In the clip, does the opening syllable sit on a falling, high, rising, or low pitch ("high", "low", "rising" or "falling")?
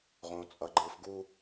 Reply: low